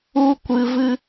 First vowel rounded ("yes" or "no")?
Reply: yes